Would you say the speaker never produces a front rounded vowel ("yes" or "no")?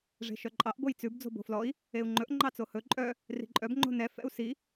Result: no